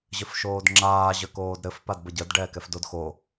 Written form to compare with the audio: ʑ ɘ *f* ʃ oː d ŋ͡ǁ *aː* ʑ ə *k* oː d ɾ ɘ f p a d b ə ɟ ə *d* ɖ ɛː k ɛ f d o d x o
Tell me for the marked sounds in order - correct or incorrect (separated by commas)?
correct, correct, correct, correct